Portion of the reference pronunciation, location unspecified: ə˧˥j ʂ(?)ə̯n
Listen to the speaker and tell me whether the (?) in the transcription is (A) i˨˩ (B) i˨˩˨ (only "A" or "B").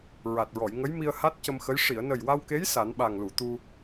B